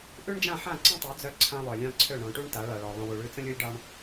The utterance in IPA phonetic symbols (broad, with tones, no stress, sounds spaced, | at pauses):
ʔ ʉ˦ ɳ d͡ʒ ã˦˨ ħ ã˦˨ ǀ ə̃˦ tˤ œ˨˦ d͡z œ˧ ǀʰ ã˧ lˠ œ˨ lʲ ɑ̃˧ ǀʰ ø˦˨ ɳ ɔ̃˨ ʈ u˦ ɳ t a˨˦ ɭ a˨ ɭ ɔ˨ lˠ ə̃˧ w u˨ ɭ ʉ˧ t͡s ə̃˦ lʲ u˦ lʲ ɖ ɑ˦ ɳ